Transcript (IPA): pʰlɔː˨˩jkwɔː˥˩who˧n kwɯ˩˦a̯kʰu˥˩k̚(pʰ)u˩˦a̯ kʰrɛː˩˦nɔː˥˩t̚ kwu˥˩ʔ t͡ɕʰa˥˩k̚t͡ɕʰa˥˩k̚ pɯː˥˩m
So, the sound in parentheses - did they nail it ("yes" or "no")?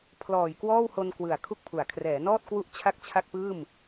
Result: yes